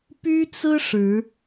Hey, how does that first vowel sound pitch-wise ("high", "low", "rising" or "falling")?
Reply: high